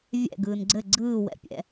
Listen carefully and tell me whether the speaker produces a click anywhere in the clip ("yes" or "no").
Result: yes